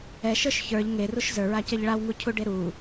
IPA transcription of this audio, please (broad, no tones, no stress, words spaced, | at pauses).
ɛ ʃə˞ʃçə˞ʎ ŋeruʃ zə˞ɹacɛʎ ɭawŋucʰuɖe ɾu